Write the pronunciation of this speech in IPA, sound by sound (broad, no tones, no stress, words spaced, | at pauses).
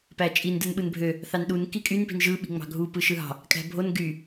pæt͡ʃʼin dɯnɓɯnbʱø | θɑnɗun kikʼyn pi̤nʒɯ ɓi̤ŋ͡mɑ̤ɡʱu pɯʃɯɦɑ̤ | kʼæ̤bʱon ɡy